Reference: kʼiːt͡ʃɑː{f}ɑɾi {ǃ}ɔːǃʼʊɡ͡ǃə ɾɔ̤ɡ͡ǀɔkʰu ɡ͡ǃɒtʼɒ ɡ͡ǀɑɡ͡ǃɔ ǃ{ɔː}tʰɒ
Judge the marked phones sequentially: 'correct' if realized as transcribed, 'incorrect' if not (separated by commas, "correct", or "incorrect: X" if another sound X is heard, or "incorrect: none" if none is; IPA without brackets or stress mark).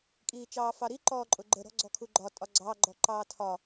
correct, correct, incorrect: ɑː